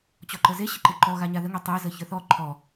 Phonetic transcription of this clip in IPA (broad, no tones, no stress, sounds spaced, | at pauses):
t͡ɕ ɔ ǃ ə z e ɕ ɪ ǃ ɪ ǃ ɔ ɣ a ɲ a ð ə ŋ e tˤ e z ə ç ə˞ θ ɔ ǃʰ ɔ